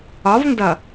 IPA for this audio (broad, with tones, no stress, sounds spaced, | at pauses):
ɒ˨˦ v n d ʌ˨